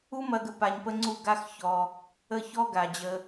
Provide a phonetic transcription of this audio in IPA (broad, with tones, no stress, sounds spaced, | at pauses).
u˦ m ɐ˧ ɡ ə˧ p a˧ ɲ p ə˦ ŋ͡ǀ u˦˨ ɡ a˧ x ç ɔ˧ | ə˦˨ ç ɔ˦ ɡ a˨ d͡ʑ ə˧